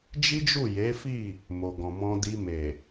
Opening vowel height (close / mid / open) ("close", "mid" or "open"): close